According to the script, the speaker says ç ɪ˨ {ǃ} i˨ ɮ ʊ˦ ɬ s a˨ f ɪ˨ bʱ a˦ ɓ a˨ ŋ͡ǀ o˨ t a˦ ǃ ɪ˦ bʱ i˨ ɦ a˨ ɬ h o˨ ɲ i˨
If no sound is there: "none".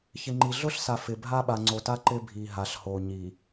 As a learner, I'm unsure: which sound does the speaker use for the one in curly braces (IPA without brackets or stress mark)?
ŋ͡ǃ